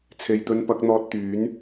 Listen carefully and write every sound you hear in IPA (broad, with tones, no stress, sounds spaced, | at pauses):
t͡sʰ e˨ j t̪ ɵ˧ n p ɐ˨˥ k̚ n̪ ɔː˧ t̚ t̪ yː˨˥ n